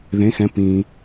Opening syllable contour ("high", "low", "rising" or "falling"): rising